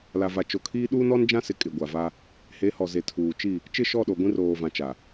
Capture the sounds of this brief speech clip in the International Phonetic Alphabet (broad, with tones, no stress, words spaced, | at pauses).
la˨va˨ t͡ʃo˨kʰiː˦ ɗuː˦nɔ˦nd͡ʒã˦sɪ˨ kʼɪ˨ɡʷa˨va˦ | he˨˦hɔ˨ze˨tʰuː˨ t͡ʃi˦˨ | t͡ʃɪ˦˨ʃɔ˦˨ɗo˨ ɡʷĩ˦roː˨vã˨ t͡ʃa˨